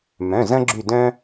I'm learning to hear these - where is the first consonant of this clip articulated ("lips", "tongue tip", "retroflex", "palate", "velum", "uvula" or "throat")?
lips